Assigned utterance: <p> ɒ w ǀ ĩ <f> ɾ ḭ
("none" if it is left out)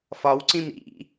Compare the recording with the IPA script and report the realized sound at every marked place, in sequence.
f, m

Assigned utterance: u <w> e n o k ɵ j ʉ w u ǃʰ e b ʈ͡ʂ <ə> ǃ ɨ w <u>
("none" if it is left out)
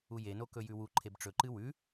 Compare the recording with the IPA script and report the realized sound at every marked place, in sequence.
j, ɵ, ʉ

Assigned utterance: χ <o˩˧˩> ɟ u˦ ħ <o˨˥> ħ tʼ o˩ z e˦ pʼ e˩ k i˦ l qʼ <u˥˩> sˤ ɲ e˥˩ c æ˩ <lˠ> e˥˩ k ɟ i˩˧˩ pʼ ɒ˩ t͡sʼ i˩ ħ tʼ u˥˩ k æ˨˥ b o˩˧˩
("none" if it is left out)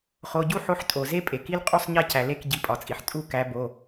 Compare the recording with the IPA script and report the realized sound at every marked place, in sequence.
o˩˧˩, o˨˥, u˥˩, l

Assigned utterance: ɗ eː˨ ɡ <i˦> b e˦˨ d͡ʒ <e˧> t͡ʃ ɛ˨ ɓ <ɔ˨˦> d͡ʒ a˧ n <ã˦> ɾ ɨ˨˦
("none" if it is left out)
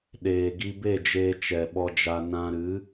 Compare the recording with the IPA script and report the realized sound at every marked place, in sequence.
i˧, eː˧, ɔ˧, ã˧

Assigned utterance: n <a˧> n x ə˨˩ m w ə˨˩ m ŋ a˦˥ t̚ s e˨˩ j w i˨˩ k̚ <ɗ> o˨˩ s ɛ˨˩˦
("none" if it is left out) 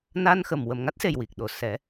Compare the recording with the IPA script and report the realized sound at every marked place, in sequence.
a˧, ɗ

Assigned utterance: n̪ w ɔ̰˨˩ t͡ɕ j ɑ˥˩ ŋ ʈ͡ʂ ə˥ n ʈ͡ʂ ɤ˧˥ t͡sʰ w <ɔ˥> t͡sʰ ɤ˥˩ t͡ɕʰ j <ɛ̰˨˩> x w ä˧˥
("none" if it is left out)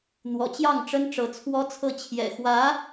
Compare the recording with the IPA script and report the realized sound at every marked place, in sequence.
ɔ˥, ɛ̰˨˩

